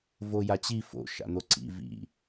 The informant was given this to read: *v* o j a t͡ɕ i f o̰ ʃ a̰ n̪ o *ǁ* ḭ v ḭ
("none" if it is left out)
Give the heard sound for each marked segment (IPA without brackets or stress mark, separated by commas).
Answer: v, ǀ